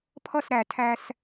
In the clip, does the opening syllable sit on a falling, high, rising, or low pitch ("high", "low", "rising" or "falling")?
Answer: falling